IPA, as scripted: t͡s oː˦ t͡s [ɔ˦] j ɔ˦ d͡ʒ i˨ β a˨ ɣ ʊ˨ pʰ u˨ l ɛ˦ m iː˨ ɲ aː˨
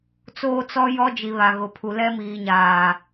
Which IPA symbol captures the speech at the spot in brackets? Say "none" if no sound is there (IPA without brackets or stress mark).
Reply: ɔ˦